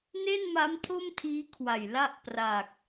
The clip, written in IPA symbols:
n e˥˩ n m a˦˥ m tʰ o˥˩ m tʰ iː˦˥ kʰ w a˨˩ j l a˥˩ ʔ p r a˨˩ k̚

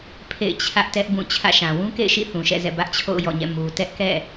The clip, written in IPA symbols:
pʰ ḛ˦˨ ɪ̯ t͡ɕʰ ä˦ ʔ t ɛ˦ ʔ b ũ˦˨ t͡ɕʰ ä̰˦˨ ʃ ã˨ w ũ˦ k ḛ˦˨ ɪ̯ ʃ ḭ˦˨ θ ũ˨ ʃ ɛ̰˦˨ z ɛ̰˦˨ b ä˦ ʔ t͡ɕʰ o̰˦˨ ʊ̯ j ɔ̰˦˨ ɲ ɛ̰˦˨ m u˨ t ɛ˦ ʔ k ɛ̰˦˨

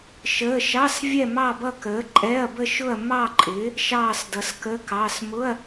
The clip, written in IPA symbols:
ʃ əː˧˥˧ ʃ ɑ˧˥˧ s vʲ ɛ˥˧ m ɑ˥˧ b ʌ˥˧ k əː˨˥ ǃʼ ɛ˧˥˧ ɐ̯ b ə˥˧ ʃ ʊ˥˧ ɐ̯ m ɑ˥˧ ǃʼ ɪː˨˥ | ʃ ɑː˥˧ s d ʌ˨˥ s k ə˧˥˧ k ɑ˧˥˧ s m ʊ˧˥˧ ɐ̯

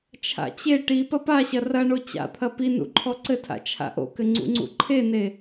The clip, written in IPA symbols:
t͡ʃʰ a̰ t͡ɕ e ʈ i p ɐ p a ɕ ɐ r ɐ ɳ o t͡ɕ a̰ t̪ʰ ɐ p i n ṵ ǃʰ ɔ ǀ ɘ tʰ a̰ t͡ʃʰ a̰ ʔ o̰ k ɘ ŋ͡ǀ ṵ ŋ͡ǀ ṵ ǃʰ e n e

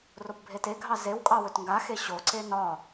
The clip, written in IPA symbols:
r o p bʱ e t e ɡʱ ɑ z e w kʼ ɑ w ɵ t ŋ ɡ a x e ɕ o ǀ e n ɒ

